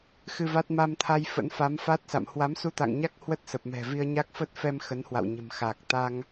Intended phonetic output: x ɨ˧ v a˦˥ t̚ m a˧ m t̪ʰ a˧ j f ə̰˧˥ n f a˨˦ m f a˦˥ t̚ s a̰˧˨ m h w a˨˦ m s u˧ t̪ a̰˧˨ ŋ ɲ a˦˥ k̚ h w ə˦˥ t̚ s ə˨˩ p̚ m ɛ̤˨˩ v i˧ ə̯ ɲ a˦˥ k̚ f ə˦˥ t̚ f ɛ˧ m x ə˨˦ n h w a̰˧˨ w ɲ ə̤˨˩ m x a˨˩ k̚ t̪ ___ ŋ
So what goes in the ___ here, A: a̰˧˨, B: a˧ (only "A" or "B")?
B